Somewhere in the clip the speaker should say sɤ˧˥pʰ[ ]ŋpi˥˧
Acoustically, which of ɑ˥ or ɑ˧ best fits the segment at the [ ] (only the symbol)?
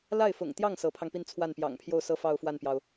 ɑ˧